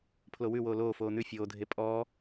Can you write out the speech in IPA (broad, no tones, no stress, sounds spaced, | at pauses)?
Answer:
pʰ l o w ʉ w oː l oː f oː n̪ ʉ fʲ oː dʱ e pʼ ɔː